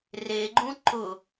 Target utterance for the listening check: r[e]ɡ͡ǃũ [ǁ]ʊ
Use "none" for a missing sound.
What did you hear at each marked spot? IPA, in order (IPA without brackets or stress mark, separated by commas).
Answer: e, ǃ